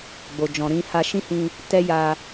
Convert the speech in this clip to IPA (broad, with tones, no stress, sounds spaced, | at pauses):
ɡ͡b o˨ d͡ʒ ɔ̃˨ ɾ ĩ˧ h a˧ ʃ ĩ˦ h ĩ˧ | t ɛ˦ j a˧